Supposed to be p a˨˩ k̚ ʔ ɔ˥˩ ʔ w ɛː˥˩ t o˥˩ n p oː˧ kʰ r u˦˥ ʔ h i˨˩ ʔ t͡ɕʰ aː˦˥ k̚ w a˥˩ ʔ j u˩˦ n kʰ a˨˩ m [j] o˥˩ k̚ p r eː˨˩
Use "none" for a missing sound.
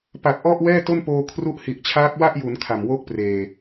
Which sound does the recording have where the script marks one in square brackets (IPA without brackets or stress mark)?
w